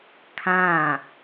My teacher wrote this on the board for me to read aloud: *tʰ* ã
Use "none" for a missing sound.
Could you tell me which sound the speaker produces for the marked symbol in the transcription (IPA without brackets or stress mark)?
kʰ